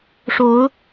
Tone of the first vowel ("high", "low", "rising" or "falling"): rising